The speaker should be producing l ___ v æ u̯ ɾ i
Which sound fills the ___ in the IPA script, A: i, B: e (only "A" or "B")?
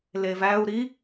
B